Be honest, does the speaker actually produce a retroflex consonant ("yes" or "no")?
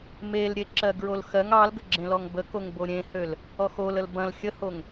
no